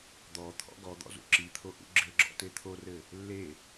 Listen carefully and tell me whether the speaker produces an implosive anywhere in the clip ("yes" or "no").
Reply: no